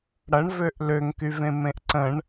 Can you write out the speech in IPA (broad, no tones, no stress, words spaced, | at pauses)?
ɽɐɳvøʔ løŋkyvẽ mẽʔǀə̃ɳ